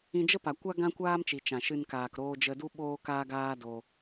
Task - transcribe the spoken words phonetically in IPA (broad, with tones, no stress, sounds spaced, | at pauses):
ĩ˧ d͡ʒ ə˦ p a˨ kʷ a˦ ɡ ã˦ kʷ aː˦ m t͡ʃ i˨ t͡ʃ ã˨ ʃ ɨ˧ n k aː˨ k ɾ oː˧ d͡ʒ ə˧ d u˦ ɓ oː˦ k aː˦ ɡ aː˦ d o˧